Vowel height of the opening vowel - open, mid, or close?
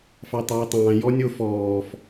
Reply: open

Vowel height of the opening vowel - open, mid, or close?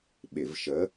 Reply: close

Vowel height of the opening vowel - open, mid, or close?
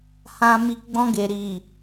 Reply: open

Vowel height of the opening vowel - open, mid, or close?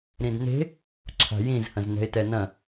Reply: close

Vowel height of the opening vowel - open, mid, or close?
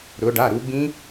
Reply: close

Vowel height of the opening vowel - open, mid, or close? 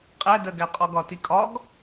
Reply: open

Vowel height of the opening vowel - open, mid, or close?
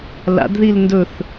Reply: open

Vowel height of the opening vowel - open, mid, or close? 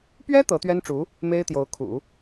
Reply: mid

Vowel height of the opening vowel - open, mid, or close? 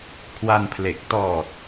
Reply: open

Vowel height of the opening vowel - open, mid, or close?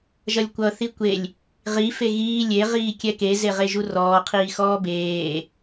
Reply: mid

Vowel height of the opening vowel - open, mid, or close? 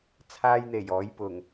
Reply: open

